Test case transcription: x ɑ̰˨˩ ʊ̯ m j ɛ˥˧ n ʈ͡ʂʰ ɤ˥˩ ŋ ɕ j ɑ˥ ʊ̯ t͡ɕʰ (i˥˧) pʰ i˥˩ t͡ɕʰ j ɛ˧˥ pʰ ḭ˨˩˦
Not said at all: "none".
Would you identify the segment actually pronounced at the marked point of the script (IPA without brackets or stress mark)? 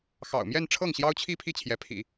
i˥˧